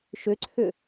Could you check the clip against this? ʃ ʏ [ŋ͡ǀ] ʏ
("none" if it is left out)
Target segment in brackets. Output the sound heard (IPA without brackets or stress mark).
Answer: ǀʰ